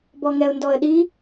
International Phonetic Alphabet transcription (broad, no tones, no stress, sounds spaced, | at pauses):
b ɔ ŋ ɛ ʊ̯ n d ɔ ə̯ ɗ i